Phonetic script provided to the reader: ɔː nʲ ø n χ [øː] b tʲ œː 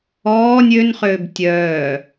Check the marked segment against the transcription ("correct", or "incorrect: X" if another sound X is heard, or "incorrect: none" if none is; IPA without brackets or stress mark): correct